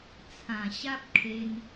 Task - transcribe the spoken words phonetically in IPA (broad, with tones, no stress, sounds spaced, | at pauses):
t͡sʰ ã˨˩ ɕ a˦ p̚ kʰ e˧ n